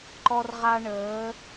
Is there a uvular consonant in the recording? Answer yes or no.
yes